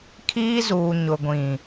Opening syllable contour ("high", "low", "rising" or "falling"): high